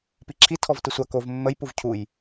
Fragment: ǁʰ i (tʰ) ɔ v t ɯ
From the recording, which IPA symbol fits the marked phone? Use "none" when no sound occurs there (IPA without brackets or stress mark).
tʰ